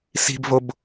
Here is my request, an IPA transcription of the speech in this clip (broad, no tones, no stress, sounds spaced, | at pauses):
s i̤ b v o b